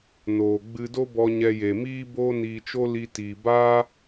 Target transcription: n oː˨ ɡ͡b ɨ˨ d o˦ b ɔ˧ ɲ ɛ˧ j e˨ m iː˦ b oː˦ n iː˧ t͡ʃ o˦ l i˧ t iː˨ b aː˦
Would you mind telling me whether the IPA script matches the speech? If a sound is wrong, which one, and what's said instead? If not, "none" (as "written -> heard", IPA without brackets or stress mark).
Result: ɨ˨ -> ɨ˧